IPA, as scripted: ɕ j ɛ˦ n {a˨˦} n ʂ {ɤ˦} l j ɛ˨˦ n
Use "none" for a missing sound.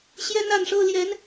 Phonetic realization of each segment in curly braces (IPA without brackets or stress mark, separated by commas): a˥˨, ɤ˦